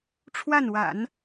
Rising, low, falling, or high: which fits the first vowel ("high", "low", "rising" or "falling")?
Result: falling